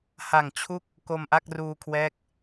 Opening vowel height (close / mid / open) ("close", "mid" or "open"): open